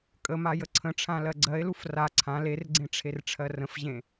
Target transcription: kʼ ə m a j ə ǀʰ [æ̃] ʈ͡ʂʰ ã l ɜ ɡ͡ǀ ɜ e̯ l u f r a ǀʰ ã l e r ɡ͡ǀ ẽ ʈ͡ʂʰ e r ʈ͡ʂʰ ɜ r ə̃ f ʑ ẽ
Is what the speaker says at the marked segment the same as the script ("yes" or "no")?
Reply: no